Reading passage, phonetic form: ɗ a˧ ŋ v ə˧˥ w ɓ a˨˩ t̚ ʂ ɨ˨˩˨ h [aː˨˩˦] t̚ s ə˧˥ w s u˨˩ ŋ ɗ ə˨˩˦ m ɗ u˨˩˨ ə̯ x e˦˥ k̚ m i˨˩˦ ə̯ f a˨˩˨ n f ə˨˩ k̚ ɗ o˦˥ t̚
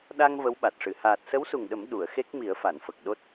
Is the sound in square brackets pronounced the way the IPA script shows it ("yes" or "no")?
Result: no